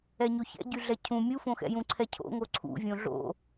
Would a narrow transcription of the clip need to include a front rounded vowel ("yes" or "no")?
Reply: yes